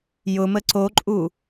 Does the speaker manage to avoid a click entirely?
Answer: no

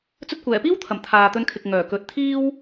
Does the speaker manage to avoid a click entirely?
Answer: yes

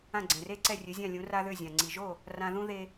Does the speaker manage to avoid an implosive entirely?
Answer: yes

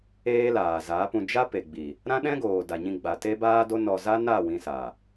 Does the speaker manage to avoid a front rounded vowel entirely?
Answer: yes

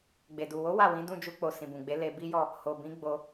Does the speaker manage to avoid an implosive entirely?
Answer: yes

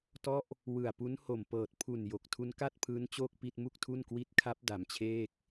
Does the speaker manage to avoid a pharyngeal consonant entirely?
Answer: yes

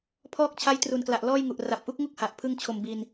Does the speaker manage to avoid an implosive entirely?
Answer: yes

